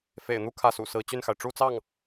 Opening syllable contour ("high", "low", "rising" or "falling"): low